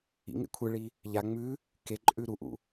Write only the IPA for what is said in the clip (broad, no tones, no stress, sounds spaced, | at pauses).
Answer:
ḭ ŋ ḛ kʷʰ ɨ ɭ i | ʎ a ŋ͡m ʉ | k e ǃʼ ʉ ɾ u ʔ ṵ